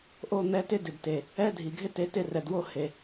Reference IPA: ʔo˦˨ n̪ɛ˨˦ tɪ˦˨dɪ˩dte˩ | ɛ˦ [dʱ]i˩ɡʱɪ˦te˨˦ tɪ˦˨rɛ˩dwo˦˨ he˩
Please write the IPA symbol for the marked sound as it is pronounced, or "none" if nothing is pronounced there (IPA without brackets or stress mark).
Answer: dʱ